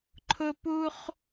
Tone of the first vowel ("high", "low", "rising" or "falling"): high